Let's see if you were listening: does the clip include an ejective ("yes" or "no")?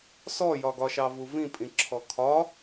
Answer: yes